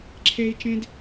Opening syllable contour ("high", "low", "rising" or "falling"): high